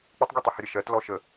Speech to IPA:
k͡p ə tˤ ɡʲ ɛ tˤ ə h ə ɾʲ ə ʃ ɜ t l ɔ ʃ ə

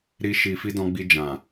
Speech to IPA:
ɾ i˧ ʃ i˨ f i˧ d ɔ̃˧ ɡ͡b i˧ d͡ʒ ã˨

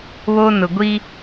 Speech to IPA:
β o˦ n ʊ˨ ɡʷ i˦

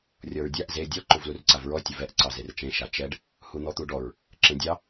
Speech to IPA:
rʲ ɔ ɹ dʲ a ʔ z e dʲ ɔ ǃ u v l u r ǀ a v ɹ ɔ tʲ ə v ɛ ʔ ǀ ɑ z e r t͡ʃ ẽ ʃ a t͡ʃ ɛ ɖ | h u n̪ ɔ t̪ u ɖ ɔ ɹ | ǁ ẽ dʲ ɑ

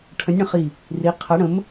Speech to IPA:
ʈʰ ə̃˨˥ nʲ ɽ ə̃˧˩ χ i˧˩ | r i˨˥ qʰ ɐ˨˥ ɽ ə̃˨˥ m

